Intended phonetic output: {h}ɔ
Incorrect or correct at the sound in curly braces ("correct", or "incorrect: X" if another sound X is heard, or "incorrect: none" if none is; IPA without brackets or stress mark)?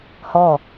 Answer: correct